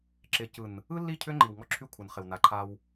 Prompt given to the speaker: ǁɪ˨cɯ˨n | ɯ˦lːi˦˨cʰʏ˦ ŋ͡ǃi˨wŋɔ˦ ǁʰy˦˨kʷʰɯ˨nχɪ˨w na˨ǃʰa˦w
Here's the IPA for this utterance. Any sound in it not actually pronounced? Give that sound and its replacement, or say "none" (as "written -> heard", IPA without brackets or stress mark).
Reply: none